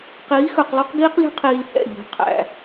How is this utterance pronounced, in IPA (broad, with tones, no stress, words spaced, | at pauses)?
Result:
qiː˨˦xɵ˨qlˠo˦q ɡiː˦qlʲo̤˦ qʰiː˧lhɛ̰˦˨ ʎo̤˨˦ qʰæ̰˨